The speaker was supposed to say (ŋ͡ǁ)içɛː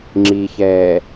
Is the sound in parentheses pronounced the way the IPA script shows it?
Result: yes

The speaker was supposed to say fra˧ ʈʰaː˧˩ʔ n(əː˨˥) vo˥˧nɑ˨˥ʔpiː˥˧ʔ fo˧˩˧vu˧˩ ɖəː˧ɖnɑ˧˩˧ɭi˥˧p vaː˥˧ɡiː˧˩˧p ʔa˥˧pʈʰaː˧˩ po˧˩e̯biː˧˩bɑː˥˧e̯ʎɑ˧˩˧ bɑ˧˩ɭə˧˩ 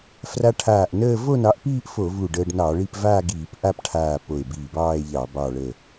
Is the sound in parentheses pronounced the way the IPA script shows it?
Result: no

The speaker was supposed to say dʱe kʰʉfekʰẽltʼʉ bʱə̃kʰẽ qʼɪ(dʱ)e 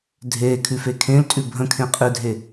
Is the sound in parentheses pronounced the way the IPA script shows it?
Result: yes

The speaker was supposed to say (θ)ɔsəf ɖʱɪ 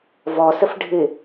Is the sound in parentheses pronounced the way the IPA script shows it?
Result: no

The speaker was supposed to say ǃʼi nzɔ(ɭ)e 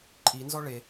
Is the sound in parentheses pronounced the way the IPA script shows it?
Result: yes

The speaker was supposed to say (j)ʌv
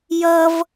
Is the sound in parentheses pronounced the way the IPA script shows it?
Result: yes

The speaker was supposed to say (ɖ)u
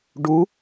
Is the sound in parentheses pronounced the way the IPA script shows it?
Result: yes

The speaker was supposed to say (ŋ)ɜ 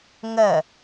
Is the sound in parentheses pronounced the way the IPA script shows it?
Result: yes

